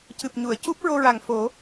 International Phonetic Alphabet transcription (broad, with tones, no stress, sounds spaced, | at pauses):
c ɨ˨˩ p̚ ɲ u˨˩˨ ə̯ c u˦˥ p̚ ɹ o˧ ɹ a˨˩ ŋ f o˨˩˦